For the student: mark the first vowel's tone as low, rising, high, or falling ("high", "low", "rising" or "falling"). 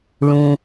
low